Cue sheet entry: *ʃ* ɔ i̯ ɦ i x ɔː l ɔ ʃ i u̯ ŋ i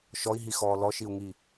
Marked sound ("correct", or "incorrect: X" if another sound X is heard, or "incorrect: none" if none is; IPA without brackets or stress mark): correct